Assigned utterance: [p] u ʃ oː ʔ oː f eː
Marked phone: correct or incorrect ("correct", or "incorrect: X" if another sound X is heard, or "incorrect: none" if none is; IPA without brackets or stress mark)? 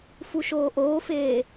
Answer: incorrect: f